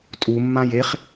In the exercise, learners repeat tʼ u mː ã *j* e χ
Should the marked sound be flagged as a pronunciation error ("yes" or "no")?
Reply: no